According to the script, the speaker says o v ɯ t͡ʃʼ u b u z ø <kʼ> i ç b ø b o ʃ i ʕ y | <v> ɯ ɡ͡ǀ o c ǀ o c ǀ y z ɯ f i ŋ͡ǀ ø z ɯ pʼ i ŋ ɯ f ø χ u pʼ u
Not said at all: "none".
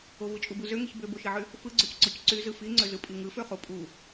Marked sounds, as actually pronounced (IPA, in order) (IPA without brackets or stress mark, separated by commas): ŋ, f